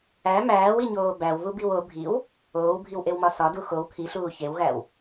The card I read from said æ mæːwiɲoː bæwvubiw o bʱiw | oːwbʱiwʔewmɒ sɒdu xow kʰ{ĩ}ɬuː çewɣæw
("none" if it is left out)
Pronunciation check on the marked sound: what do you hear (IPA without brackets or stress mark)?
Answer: i